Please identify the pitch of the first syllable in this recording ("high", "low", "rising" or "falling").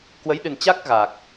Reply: rising